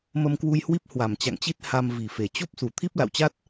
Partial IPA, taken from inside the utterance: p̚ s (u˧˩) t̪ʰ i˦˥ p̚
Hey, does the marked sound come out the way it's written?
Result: yes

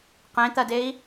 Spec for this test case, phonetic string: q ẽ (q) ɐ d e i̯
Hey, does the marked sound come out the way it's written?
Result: no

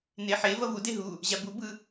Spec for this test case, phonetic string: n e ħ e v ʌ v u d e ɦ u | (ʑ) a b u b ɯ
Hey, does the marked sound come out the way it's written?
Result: yes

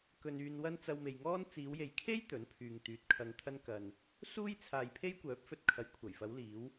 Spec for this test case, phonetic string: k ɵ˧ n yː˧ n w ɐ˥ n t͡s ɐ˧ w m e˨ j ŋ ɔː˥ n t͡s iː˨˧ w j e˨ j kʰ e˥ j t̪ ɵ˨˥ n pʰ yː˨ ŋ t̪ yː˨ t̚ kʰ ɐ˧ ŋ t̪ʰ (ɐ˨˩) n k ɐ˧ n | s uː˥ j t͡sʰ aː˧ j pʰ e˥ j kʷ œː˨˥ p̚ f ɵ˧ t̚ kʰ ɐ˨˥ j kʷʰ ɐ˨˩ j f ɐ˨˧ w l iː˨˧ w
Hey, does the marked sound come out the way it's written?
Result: no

